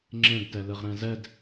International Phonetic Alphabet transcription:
ŋ͡ǁẽɡtɛlɯʁ ɾɛ̃zɛd

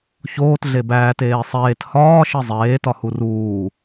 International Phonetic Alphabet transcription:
çoːt ɮebæːt eːsˤeːt hɒː ʃizˤeː tɒhuruː

